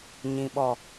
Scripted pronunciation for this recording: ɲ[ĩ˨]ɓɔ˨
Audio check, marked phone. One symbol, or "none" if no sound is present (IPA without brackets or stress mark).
ĩ˨